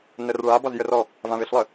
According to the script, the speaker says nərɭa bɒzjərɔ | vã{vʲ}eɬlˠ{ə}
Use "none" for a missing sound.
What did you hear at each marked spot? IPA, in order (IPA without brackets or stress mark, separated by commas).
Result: v, ə